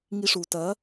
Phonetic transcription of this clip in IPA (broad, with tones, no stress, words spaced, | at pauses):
ŋi˧ʂu˩tɐ˩˥